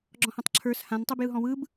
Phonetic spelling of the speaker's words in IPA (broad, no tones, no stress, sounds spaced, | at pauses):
ɡ͡ǁ ɔ̃ h ã tˤ ǁʰ ə˞ s h ã n tˤ ɯ b j ɯ ɦ ɔ̃ w ɯ b